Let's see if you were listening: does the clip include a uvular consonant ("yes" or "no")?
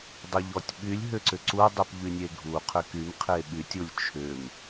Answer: yes